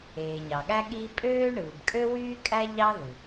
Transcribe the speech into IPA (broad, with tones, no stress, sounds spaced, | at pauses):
eː˩ ɲ ɑ˩ ɠ æ˥ ɠ iː˥ pʼ øː˥ ɳ ɯː˩ b kʼ ø˥ w yː˥ kʼ æ˥ ʎ ɑ˥ ð ɯ˩